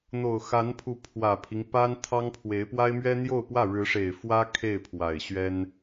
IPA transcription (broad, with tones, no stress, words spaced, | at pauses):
n̪o˨˩ʊ̯ xa˧˥npʰu˧˥ pʰwä˨˩pʰi˦ŋ pa˥nt̪ʰɑ˥ŋpʰwe˧˥ɪ̯ pwa˥ɪ̯mɥɛ˥n̪jo˥˧ʊ̯pwä˥˩ ɻɻ̩˧˥ʂe˨˩ɪ̯fwä˥ kʰe˥˩ɪ̯pʰwa˨˩ɪ̯ɕɥɛ˥n